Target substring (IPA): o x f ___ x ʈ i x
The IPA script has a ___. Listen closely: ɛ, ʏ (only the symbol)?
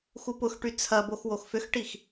ʏ